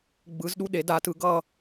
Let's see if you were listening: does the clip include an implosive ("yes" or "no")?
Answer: yes